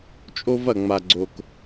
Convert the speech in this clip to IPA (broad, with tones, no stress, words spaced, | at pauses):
t͡ʃʼo˦vɐ˨ŋ͡ma˨ɡ͡ǀo˨k